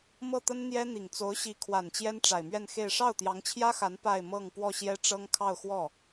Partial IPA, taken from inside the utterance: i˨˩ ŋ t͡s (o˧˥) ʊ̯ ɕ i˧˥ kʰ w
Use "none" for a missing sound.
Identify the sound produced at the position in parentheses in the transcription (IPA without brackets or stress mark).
o˧˥